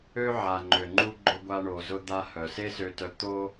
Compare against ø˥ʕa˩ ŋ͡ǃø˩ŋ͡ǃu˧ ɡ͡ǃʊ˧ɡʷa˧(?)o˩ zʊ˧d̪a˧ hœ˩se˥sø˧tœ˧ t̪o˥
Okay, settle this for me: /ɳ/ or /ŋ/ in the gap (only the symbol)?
ɳ